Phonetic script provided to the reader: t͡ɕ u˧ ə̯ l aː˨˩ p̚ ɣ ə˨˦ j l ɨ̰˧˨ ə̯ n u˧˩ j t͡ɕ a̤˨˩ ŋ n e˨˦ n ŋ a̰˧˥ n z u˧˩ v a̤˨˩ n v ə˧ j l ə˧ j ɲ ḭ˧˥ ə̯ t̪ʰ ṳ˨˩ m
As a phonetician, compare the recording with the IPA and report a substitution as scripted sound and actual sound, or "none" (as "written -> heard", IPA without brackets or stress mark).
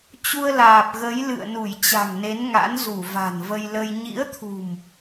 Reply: none